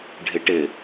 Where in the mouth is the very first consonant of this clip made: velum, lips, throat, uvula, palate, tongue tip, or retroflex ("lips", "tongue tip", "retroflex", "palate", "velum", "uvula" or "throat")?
retroflex